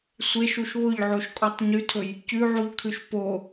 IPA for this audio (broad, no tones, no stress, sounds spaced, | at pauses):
sʷ e ʃ u ʃ β ʊ ʎ ʕ o ʃ kʼ ɔ tˤ ɲ ʉ tʰ ɵ j | c ʉ ʕ u ʎ kʰ ʉ ʃ p o